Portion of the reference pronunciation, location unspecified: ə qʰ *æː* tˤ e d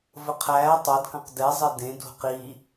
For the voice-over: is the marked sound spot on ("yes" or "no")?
yes